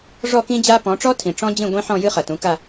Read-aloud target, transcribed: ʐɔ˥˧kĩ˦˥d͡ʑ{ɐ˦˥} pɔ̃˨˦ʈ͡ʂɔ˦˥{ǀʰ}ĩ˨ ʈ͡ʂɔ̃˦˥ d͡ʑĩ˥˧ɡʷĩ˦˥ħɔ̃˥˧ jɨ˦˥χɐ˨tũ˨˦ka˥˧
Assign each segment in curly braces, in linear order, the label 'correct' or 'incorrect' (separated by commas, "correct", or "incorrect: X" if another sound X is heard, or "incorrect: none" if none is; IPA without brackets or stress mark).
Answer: incorrect: a˦˥, incorrect: tʰ